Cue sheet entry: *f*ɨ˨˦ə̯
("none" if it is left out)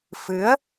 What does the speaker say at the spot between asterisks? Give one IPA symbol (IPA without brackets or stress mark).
f